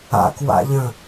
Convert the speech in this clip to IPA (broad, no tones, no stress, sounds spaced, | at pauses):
a̰ k w a̰ ʎ ə̃